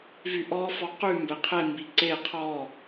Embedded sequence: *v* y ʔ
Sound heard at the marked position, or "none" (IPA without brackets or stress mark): v